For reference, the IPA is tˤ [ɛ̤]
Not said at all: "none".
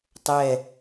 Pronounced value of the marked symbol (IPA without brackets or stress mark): ɛ